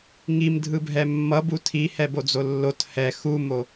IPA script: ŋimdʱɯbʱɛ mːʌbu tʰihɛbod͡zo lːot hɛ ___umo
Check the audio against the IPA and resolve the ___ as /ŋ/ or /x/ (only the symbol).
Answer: x